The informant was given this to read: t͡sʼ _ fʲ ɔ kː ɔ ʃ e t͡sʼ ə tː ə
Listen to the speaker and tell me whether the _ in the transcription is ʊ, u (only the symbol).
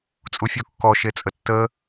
u